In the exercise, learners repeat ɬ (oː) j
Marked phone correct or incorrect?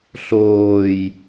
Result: correct